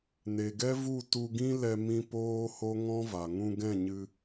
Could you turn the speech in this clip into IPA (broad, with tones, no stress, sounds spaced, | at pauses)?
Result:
n e˨ ɡ ɛ˦ v u˦˨ t u˧ ɡ ĩ˦ l ɛ˧ m ĩ˧ p oː˦ h o˦ ŋ ɔ̃˦ v a˨ ŋ ũ˧ ɡ ɛ̃˦˨ ɲ ɨ˧